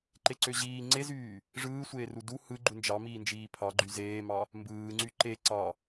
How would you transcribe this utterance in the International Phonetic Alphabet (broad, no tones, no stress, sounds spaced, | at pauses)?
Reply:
ǃ e ǀ ø ʑ iː ŋ͡ǀ e z yː | ʐ ɯː sʷ eː r u d u h ɯ ɡ͡ǃ u n d͡ʒ ɑ m iː n d͡ʒ iː pʰ ɑ ɡ͡ǃ y z eː m ɑ | m b ɯː ŋ͡ǀ y ǃ e ǀ ɑ